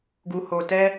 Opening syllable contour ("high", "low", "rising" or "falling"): low